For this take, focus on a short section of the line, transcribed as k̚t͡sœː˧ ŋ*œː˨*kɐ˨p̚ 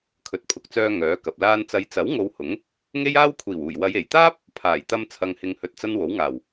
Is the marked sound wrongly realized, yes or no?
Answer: yes